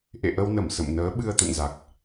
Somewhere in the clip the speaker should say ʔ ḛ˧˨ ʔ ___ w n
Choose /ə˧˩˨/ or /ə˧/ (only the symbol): ə˧